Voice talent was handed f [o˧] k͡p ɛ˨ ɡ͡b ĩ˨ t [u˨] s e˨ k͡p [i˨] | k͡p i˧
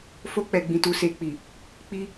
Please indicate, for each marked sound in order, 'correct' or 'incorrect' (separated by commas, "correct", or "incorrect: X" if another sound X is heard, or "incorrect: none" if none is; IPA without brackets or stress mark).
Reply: correct, correct, correct